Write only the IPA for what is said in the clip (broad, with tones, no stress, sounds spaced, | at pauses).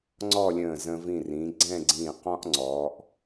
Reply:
ŋ͡ǀ ɔ˥˧ lʲ ə̃ː˧˩ z ə̃˧ v ĩ˧˩ r ĩ˩˧ ɡ͡ǀ ɛ̃˥˧ ɡ͡ǀ ĩː˧˩ q ɔ̃˥ ʔ ŋ͡ǀ ɔ˩˧ ʔ